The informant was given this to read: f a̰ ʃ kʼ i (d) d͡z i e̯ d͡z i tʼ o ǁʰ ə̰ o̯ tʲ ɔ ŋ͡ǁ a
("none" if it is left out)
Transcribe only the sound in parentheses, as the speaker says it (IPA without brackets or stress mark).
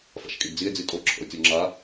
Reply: d